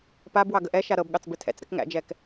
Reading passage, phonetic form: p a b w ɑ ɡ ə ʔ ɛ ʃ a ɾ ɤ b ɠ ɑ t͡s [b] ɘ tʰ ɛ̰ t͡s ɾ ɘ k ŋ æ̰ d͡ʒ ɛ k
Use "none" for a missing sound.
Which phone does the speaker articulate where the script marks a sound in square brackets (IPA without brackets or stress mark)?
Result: b